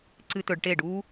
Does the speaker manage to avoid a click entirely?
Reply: no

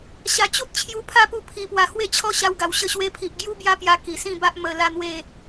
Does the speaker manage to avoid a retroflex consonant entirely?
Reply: yes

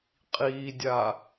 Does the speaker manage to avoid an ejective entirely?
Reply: no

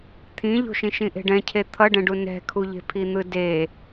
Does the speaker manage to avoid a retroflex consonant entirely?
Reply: no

